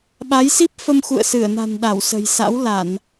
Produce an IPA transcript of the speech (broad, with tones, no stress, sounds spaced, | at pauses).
ɓ a˨˦ j s i˦˥ p̚ f ə˧ m x ṵ˧˨ ə̯ s ɨ˧˩ ə̯ n a̤˨˩ n ɗ a˧˩ w s ə̤˨˩ j s a̰˧˥ w l a˧˩˨ n